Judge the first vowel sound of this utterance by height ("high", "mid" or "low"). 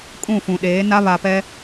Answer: high